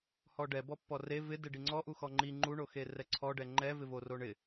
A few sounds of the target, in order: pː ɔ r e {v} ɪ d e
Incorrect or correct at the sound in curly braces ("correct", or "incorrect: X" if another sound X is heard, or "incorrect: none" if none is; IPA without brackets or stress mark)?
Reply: correct